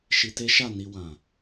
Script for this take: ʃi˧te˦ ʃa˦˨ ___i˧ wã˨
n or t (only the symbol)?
n